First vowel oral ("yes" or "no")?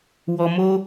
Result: yes